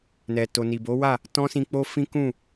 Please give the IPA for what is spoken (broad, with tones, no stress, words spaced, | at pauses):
nɛ˨to˨ ni˨bo˨˦wa˦˨ | tɔ̃˦sĩ˧k͡po˦ fĩ˦kũ˦˨